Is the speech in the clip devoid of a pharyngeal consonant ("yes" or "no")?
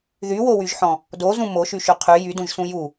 no